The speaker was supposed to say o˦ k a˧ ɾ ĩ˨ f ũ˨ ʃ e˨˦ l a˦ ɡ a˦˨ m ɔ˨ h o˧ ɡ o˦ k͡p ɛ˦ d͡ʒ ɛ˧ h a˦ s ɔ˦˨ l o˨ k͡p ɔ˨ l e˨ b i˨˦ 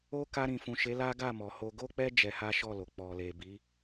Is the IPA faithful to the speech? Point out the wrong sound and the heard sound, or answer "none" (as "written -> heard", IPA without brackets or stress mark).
s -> ʃ